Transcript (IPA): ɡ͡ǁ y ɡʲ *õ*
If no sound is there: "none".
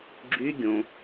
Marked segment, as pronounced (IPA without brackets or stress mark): õ